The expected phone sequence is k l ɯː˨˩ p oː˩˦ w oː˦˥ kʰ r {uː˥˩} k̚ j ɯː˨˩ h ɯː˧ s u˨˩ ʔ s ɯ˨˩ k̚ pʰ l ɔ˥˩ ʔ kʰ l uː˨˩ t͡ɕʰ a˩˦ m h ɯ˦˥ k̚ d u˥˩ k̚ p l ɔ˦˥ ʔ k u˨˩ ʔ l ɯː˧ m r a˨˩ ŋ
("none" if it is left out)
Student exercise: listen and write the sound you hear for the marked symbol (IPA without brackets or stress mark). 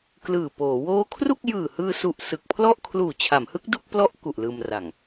u˥˩